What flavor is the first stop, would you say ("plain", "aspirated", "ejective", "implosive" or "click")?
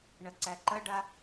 click